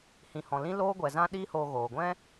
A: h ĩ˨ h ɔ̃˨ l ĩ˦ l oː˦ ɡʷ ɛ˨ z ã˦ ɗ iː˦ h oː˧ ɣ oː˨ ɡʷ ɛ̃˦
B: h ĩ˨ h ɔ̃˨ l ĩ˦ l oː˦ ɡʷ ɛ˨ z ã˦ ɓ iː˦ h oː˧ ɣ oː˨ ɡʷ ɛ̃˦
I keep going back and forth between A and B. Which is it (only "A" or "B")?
A